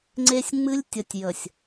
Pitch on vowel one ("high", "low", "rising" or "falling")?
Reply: high